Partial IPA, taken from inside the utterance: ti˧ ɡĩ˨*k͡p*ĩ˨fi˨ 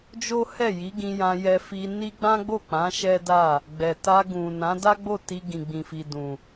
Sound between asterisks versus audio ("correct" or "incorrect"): incorrect